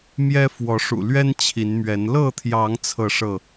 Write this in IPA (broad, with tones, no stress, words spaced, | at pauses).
mjɛ˦fwɔ˨˦ʂṵ˨˩ lɥɛ˦n t͡ɕʰi˨˦nmɥɛ˨˦n lɤ˥˨t̪ʰjɑ˨˦ŋ t͡sʰɤ˥˨ʂɤ˥˨